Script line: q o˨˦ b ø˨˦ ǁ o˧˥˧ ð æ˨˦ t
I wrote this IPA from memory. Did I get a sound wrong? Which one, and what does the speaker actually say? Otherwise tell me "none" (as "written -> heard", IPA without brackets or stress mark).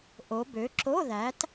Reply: q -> ʔ